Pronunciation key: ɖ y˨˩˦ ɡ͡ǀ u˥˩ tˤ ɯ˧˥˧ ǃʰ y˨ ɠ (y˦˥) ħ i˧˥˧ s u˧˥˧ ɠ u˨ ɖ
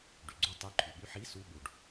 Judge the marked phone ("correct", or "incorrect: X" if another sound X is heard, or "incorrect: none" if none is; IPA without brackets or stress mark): correct